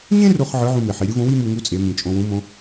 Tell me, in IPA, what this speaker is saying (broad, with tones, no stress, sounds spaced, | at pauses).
ɲ ẽ˥ r o˧ χ ʕ ɯ˧˥ ʕ ũ˧ m e˩ ħ i˩˧ ɾʲ ɯ˧˥ v õ˧˥ w i˥ m u˧ ŋ u˧˥ t͡sʼ e˩˧ m ĩ˩ t͡ʃʼ õ˧ w ũ˧˥ m õ˧˥